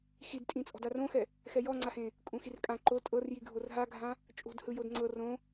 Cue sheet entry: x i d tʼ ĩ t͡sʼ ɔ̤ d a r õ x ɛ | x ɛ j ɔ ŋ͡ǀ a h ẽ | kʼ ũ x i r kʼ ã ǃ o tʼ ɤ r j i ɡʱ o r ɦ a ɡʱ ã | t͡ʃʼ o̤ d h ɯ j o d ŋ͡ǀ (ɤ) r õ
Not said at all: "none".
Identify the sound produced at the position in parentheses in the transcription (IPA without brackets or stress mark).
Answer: ɤ